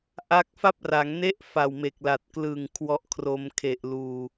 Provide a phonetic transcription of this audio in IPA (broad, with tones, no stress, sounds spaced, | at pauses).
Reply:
ʔ a˦˥ k̚ f a˥˩ p̚ r a˩˦ ŋ n e˥˩ ʔ f a˨˩ w m e˨˩ k̚ l a˨˩ t̚ k l ɯ˨˩ ŋ kʰ w ɔ˦˥ ʔ kʰ r o˧ m kʰ e˨˩ ʔ l uː˨˩